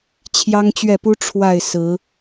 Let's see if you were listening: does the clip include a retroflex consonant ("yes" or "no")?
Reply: yes